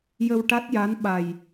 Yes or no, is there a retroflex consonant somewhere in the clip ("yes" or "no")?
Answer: yes